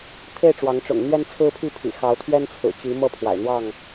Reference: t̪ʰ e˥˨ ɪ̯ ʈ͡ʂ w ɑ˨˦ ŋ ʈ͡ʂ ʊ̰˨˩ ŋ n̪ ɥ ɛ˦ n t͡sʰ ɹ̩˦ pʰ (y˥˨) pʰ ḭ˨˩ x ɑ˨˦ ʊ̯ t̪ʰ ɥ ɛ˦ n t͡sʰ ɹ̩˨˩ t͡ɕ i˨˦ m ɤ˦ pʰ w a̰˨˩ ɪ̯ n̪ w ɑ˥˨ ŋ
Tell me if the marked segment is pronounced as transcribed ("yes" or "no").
no